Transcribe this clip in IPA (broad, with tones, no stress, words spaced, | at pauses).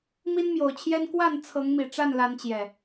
mi˦nmjo˨˩ʊ̯t͡ɕʰjɛ˦n kwa˥˨n t͡sʰɤ˨˦ŋmi˨˩ ʈ͡ʂa˥˨nla˨˦nt͡ɕjɛ˨˩